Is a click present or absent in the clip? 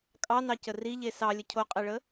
absent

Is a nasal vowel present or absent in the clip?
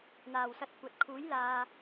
absent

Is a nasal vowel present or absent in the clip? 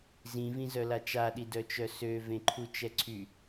present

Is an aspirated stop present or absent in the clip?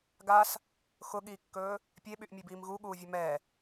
absent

